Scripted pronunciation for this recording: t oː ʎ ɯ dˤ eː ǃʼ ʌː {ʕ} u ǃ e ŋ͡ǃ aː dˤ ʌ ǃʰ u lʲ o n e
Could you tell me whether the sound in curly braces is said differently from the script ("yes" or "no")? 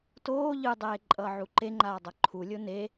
no